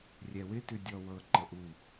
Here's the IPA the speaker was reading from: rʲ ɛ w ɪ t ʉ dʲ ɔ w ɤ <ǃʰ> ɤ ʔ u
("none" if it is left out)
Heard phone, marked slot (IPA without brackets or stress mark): ǃ